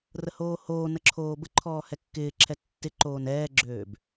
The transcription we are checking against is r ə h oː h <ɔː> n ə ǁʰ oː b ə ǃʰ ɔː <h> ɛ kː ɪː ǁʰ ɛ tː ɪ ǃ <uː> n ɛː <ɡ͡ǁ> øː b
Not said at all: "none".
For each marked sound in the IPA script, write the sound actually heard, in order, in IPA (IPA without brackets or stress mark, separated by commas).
oː, h, oː, ɡ͡ǁ